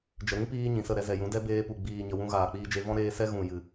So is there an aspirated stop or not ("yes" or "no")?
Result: no